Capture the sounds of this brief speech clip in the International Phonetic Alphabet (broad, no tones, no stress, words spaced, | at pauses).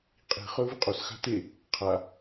qʼi̤χɵ vɨqʼos xa̤te | qʰa